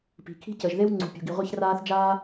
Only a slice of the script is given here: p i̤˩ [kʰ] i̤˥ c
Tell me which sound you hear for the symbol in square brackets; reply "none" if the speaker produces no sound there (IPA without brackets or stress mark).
kʰ